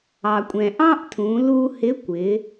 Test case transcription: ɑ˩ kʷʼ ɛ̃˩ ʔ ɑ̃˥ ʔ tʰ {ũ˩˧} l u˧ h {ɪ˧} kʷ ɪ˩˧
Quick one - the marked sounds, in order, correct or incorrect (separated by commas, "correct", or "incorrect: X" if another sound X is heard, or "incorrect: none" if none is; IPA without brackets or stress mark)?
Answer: correct, incorrect: ɪ˧˥